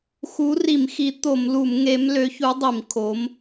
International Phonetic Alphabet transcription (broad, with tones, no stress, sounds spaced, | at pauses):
x u˨˥ r i˧˩˧ m x i˨˥ t̪ o˧˩˧ m l u˧˩˧ m ŋ e˨˥ m l ø˨˥ ç u˨˥ dˤ i˧˩˧ m kʰ o˨˥ m